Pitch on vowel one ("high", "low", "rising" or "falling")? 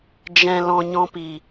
low